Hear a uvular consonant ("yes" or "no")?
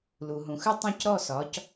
no